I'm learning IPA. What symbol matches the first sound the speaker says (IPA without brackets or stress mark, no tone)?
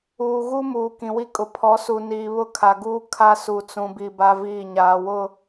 uː